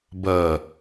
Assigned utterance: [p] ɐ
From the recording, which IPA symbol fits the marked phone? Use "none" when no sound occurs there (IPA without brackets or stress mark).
b